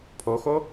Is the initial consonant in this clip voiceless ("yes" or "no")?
yes